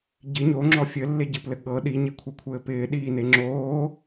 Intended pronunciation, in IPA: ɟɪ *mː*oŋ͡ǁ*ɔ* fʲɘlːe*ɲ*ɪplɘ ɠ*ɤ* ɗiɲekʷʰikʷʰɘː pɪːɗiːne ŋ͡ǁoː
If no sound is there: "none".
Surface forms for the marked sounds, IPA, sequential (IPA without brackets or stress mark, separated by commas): ɲ, ɔ, ɟ, ɤ